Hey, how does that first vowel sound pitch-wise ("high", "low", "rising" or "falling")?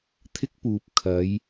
high